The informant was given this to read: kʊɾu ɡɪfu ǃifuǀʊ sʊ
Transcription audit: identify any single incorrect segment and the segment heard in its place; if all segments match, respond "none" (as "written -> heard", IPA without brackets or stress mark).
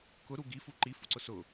ɪ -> i